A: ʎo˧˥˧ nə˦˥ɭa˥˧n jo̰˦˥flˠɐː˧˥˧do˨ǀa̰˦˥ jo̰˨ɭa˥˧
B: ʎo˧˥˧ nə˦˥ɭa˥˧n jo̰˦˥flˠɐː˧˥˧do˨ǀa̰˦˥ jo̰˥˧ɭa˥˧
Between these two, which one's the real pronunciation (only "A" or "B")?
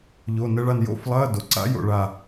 B